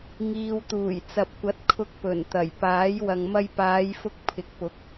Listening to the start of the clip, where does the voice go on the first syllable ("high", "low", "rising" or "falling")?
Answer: low